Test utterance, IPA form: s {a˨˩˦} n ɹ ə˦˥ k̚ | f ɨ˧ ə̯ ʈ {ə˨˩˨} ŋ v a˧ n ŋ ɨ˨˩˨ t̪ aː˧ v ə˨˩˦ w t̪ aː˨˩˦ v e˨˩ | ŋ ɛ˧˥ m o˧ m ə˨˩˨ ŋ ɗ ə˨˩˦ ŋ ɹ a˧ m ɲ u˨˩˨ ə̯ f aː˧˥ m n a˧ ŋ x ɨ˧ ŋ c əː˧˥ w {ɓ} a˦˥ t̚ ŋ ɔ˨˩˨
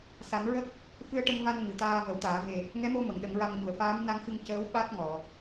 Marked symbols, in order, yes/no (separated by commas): yes, no, yes